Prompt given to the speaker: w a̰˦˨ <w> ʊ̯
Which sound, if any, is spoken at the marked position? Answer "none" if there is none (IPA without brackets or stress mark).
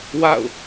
none